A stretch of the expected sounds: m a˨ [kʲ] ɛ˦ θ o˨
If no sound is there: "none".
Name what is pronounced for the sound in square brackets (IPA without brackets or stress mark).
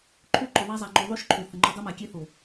kʲ